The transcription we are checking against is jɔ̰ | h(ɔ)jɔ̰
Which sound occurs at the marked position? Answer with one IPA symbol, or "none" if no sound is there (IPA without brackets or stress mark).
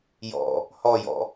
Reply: ɔ